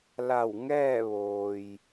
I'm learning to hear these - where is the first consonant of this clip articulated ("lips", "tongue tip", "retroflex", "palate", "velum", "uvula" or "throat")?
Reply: tongue tip